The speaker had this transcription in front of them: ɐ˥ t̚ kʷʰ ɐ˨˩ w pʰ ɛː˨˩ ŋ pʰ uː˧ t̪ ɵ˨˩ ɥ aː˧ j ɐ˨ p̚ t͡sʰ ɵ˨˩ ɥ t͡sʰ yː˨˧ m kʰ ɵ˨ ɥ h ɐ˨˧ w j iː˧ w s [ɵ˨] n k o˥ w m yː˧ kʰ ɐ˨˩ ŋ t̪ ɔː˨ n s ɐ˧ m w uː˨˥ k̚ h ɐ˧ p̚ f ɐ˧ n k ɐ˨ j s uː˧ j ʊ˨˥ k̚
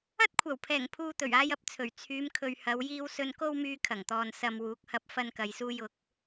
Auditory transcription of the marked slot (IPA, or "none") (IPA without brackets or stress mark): ɵ˧